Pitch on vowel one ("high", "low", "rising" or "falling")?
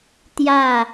falling